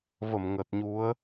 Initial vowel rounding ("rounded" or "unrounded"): unrounded